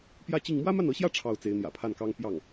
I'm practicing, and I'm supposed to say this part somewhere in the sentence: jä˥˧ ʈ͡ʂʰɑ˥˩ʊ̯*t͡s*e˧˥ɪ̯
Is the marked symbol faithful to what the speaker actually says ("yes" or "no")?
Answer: yes